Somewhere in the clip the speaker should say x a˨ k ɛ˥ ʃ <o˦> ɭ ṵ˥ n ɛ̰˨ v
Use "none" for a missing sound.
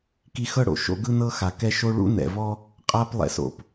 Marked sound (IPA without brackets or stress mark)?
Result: o˦